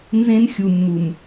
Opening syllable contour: high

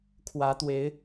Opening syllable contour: rising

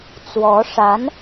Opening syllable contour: rising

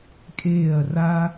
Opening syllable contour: falling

